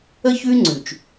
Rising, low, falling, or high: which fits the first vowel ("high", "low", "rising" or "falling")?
high